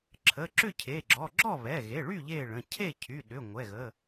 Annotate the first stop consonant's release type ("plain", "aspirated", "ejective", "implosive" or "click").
click